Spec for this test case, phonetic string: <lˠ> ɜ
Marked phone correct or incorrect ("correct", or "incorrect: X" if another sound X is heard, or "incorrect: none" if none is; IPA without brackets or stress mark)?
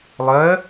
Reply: correct